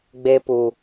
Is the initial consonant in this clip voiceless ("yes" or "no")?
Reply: no